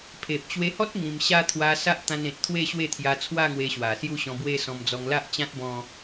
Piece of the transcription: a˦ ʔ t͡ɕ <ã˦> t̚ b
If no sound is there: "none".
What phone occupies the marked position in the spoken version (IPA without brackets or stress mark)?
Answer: ã˦